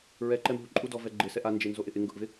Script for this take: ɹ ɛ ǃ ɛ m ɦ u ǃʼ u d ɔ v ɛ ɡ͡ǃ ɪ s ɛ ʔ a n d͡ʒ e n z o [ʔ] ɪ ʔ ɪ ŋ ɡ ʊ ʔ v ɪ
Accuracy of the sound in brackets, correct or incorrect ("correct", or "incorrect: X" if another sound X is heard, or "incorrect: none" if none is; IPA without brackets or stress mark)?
correct